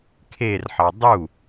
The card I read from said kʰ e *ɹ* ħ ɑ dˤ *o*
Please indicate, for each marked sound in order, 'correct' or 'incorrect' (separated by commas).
incorrect, incorrect